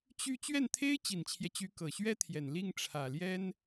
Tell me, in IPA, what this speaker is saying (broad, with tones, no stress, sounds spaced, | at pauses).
t͡ɕ y˥˧ t͡ɕ ɥ ɛ˥˩ n t̪ʰ e˥ ɪ̯ t͡ɕ i˨˩ n t͡ɕʰ j ɛ˦ t͡ɕ y˧˥ k ɤ˨˩ ɕ ɥ ɛ˥ t̪ʰ j ɛ˨˩ n l i˥˩ ŋ ʈ͡ʂʰ ä˨˩ l j ɛ˥ n